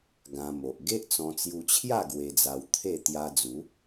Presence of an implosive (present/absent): absent